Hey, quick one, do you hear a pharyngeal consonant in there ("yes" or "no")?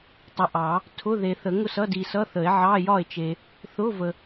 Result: yes